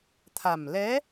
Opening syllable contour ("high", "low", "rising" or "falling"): low